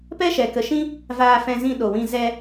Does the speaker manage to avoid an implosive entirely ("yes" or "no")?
no